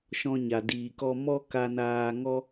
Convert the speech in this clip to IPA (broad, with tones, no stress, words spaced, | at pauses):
ʃɔ̃˧ɲa˨diː˨kɔ˧ mɔ˦ ka˧naː˧ŋɔ˦